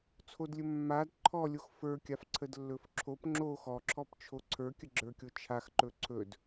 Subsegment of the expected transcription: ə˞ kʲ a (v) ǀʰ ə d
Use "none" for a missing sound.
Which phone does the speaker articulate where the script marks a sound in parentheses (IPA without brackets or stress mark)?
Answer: f